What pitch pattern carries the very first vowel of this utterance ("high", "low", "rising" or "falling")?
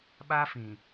high